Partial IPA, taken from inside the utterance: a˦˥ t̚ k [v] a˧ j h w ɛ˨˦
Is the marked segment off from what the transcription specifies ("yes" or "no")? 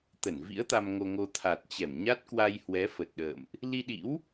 yes